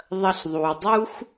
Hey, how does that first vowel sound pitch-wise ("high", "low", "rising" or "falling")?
high